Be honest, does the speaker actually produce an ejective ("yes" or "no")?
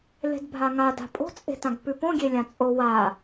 yes